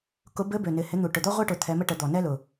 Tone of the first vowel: rising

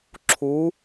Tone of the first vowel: rising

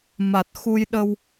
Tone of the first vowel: low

